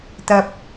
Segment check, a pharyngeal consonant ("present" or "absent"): absent